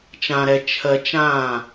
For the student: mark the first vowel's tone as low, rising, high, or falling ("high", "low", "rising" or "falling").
low